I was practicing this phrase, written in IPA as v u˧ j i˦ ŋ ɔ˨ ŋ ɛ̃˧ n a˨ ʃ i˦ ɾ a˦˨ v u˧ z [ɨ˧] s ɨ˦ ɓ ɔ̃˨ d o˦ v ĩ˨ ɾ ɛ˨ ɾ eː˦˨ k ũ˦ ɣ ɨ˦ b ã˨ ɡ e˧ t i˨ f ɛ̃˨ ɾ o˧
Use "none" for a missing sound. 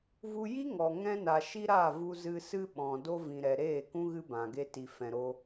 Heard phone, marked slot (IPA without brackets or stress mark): ɨ˧